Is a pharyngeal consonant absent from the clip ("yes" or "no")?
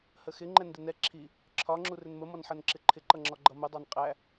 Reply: no